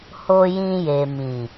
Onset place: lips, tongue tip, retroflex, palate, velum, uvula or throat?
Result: throat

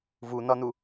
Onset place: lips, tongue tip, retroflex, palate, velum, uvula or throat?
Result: lips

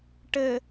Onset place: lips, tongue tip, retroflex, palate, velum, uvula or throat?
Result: retroflex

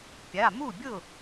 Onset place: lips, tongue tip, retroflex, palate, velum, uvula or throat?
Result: lips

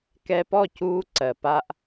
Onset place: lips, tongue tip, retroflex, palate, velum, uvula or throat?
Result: velum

